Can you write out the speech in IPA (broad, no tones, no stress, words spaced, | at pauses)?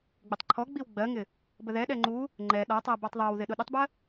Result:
ɡ͡bɪtˤǃʰɔɡ͡biw ɡ͡bɜŋɪ | bəðɛɗɛ ŋ͡ǃu | ŋ͡ǃɛ ɗɒtˤɜ bɔtˤðˤɜwðɪ ɗʊɗətˤbɜ